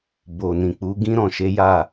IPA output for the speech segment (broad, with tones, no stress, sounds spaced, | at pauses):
b o˨ n ĩ˨ k͡p u˨˦ ɡ ĩ˦ ɾ ɔ̃˦˨ ʃ e˨˦ j a˦˨